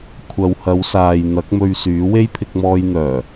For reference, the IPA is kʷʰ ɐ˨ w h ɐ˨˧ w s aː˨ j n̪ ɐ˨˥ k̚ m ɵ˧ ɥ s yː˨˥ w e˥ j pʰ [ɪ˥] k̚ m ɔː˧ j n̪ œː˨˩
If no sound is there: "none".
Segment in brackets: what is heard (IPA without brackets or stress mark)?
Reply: ɪ˧